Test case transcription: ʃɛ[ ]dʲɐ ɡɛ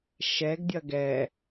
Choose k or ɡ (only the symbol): ɡ